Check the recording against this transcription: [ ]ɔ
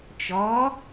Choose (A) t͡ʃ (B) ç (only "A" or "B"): A